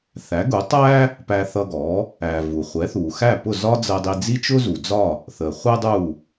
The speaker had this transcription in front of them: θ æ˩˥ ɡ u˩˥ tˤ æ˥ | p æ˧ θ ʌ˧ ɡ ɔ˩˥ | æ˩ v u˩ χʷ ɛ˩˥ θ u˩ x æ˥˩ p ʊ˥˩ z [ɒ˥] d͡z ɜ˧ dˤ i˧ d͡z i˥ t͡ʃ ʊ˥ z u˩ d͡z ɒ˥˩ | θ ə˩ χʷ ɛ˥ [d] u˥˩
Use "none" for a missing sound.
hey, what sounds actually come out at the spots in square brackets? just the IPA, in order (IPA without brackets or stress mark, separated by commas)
ɒ˥, dˤ